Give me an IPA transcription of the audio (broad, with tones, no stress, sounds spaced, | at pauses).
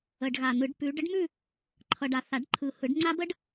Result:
ə˨ ɖ ɣ a˨ n̪ ɯ˨˩˦ ɖ p ʉ˨˦ ɖ ə˦˥ ɖ m ʉ˥˧ | ǃʰ ʌ˨ ɖ a˨ θ a˨˩˦ ɖ ǃʰ ɯ˨ h ɯ˨˩˦ ɖ ŋ͡ǀ a˦˥ b ə˦˥ ɖ